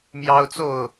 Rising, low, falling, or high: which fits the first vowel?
high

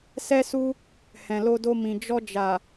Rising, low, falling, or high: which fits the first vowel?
high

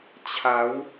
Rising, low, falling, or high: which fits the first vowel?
rising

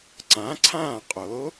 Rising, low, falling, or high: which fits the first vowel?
rising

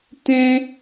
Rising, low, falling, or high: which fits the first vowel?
high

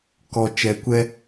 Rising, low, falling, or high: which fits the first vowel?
low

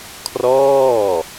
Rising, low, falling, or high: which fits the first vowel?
falling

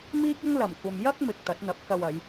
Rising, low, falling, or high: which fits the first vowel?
high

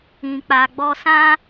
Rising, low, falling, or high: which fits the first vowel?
low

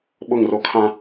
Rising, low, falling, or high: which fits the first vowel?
falling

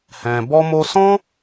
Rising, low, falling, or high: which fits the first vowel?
low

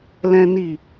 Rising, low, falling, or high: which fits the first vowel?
high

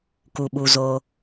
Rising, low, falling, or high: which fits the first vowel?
low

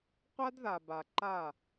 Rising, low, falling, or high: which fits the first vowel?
high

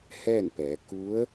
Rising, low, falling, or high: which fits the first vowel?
falling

